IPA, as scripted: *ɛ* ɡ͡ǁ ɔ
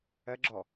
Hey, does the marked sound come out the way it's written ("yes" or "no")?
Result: no